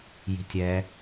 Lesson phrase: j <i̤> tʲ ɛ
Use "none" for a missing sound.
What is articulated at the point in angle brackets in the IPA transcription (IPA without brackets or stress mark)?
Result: i̤